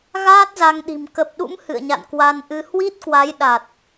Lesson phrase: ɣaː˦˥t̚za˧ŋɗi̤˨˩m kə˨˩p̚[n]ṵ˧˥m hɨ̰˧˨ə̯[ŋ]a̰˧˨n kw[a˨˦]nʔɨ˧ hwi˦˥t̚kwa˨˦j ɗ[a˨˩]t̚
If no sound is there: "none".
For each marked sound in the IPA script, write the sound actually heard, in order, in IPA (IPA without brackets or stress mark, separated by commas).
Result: ɗ, ɲ, a˧, a˨˩